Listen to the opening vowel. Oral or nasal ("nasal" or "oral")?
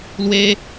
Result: oral